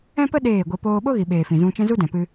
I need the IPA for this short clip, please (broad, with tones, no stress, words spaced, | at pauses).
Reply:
ɛ̃˦pə˦ ɗeː˦˨ɡʷə˧poː˦ ɓo˦ɣi˨ɓeː˨ fĩ˨zũ˧ t͡ʃɛ̃˦zu˦dɛ̃˨pɨ˧